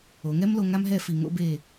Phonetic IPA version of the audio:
o˩˧ ŋ ɛ˥ m l o˧ ŋ a˥ m ɦ ɛ˥˧ f i˧˩ ŋ o̰˧ b e˧˩

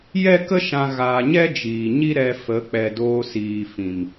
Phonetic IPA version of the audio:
j ɛ˦ k ə˦ ʃ ã˧ ɣ aː˧ ɲ ɛ˦ d͡ʒ iː˨ ɲ i˦ ɾ ɛ˧ f ə˨˦ k͡p ɛ˨ d oː˧ s iː˨ f ĩ˨ m

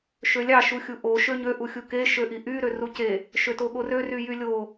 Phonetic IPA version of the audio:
ʃ ø lʲ ɑ ʃ u xʲ u ʔ o ʃ ø ɲ ø ʔ u xʲ u k e ʃ ø ʔ i ʔ y ɾ ø r u c e | ʃ ø t o ɠ o r ø r y j y lʲ o

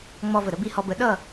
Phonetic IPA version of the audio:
ŋ͡m ɔ˧ v ə˩ ɾ ə˩˥ b i˥˩ h ɔ˧ b ə˩˥ ɗ ʌ˥˩

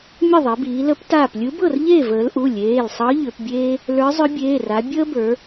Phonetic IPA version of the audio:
mʲ ə˥˨ ðˤ e˩˧ b iː˩˧ l ə˧˥ p t aː˧˩ p lʲ ɯ˧˥ b ɤ˥˨ r ʎ eː˥˨ v əː˩˧ l ʔ u˩˧˩ lʲ eː˩˧˩ l sˤ ɤ˧˥ ʎ ʏ˩˧ p bʲ eː˥ | l ə˞˧˥ zˤ ʏ˧˥ bʲ eː˩˧˩ r a˩˧ bʲ əː˥ b ə˞˩˧

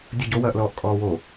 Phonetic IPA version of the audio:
dʲ ə ɟ o w ɐː ʔ l ɔː ʔ kʼ ɔː w o

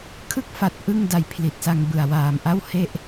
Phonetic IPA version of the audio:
kʰ ɯ˦˥ k̚ f a˨˩ t̚ ʔ ɯ˥˩ ŋ d a˧ j pʰ l i˨˩ t̚ s a˧ ŋ b ɯ˨˩ a̯ w aː˨˩ m ʔ a˥˩ w h e˥˩ ʔ

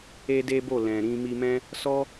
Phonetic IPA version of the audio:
e˦ d e˦ b o˦˨ l ɛ̃˨ ɾ ĩ˧ m i˧ m ɛ̃˦ | s ɔ˦

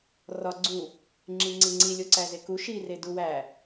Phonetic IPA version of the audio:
r ɒ ɡ͡ǀ u | ŋ͡ǁ i ŋ͡ǀ i ŋ͡ǀ i lʲ o ǀ æ z e k u ʃ i r e d u w æ

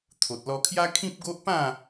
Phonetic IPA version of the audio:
t̪ʰ o˨ t̚ l ɔ˧ kʰ j a˦ kʰ ĩ˦ p̚ ɡ o˦ ʔ p ã˥˧

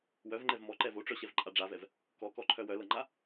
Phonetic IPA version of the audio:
w œ v ŋ͡ǃ ɛ v m ɔ ǃ ɛ v o ʈ͡ʂ œ ɕ ɛ v ǃʼ a ɖ͡ʐ a v ɛ v | k ɔ k ɔ ǃʰ œ w œ l ɤ ŋ͡ǃ a

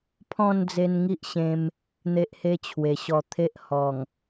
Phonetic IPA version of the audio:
pʰ ɔ̃˥˧ n d͡z e˧ n ŋ i˦ ʔ ɕ ẽ˧ m | n̪ e˦ ʔ h e˦ t͡ɕʰ w e˨˩ ɕ ɔ˧ t̪ʰ e˦ ʔ h ɔ˨˩ ŋ

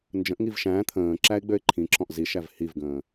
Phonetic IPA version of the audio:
n d͡ʒ ə̃ ʔ ŋ i v ʃ æ̃ː t̪ʰ ə̃ː ǁ æ ɪ̯ ɡ͡b ø ɪ̯ ǃʰ ĩ ǁ ɔ̃ ʔ z i ʃ æ v h i v ɡ ə̃ː

